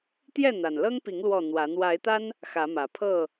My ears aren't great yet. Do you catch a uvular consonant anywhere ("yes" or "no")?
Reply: no